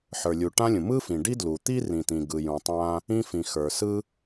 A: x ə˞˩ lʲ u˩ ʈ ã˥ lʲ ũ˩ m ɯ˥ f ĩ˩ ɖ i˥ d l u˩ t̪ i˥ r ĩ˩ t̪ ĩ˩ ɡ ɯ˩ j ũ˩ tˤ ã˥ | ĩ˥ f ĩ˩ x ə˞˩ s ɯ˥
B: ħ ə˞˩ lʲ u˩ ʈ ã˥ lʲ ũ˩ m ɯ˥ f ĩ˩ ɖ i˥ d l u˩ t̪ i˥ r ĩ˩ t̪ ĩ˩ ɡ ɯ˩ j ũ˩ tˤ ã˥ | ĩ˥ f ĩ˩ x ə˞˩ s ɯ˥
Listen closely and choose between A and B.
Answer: B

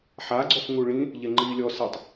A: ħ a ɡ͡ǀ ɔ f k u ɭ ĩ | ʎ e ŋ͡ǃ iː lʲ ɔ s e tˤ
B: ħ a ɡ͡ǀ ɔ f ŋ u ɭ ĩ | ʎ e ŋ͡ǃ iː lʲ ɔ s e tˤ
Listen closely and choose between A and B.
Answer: B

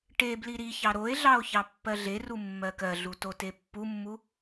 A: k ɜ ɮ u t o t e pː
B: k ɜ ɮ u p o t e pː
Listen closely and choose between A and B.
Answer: A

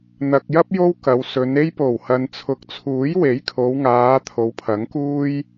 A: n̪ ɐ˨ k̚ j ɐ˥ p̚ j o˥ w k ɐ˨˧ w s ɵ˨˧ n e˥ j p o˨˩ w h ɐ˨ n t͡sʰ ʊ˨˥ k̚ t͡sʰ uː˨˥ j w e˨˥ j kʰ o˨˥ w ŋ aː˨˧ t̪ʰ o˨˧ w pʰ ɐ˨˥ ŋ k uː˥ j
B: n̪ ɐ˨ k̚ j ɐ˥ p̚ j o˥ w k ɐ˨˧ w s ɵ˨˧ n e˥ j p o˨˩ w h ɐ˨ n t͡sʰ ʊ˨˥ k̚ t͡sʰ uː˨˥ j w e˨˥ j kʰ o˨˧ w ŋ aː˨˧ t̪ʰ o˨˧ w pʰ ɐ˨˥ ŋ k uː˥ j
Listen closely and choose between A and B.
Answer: B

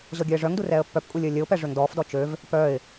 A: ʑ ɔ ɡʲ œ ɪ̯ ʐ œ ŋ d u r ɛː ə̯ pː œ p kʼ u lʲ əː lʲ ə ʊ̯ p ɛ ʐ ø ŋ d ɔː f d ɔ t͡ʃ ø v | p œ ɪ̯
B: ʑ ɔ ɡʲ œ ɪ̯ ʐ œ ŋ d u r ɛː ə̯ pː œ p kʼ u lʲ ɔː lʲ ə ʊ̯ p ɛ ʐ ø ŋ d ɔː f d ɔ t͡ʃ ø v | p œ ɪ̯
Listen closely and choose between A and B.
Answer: A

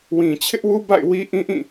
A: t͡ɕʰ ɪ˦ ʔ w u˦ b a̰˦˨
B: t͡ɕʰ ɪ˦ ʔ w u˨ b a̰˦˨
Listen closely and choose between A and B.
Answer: A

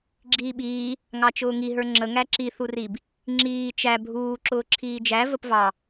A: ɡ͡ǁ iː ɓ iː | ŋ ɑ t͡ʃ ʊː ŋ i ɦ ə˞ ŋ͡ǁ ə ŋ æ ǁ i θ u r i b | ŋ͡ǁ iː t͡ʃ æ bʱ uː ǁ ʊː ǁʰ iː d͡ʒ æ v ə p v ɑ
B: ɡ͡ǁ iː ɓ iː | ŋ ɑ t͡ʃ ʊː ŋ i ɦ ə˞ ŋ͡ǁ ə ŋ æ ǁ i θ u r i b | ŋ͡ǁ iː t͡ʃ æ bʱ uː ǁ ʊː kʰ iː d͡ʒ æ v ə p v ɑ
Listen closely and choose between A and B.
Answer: A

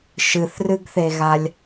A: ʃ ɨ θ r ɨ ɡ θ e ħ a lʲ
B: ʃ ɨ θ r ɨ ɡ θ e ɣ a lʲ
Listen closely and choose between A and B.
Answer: B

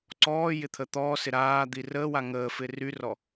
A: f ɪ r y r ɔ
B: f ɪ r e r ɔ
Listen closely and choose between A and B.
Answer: A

